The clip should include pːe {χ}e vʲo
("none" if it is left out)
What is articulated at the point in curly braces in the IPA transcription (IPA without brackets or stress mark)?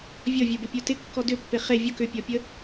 χ